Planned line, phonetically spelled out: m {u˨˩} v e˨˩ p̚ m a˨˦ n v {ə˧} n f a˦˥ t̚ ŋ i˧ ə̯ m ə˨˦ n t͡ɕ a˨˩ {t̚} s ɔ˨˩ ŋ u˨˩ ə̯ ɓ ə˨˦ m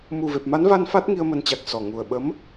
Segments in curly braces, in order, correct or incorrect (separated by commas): correct, incorrect, incorrect